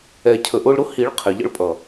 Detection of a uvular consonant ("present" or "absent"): present